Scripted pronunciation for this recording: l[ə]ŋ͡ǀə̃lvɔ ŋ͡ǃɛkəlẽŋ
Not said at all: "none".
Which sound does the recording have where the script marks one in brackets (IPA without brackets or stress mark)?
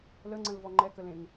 ə